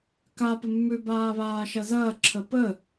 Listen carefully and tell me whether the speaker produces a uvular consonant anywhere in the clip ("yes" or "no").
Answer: no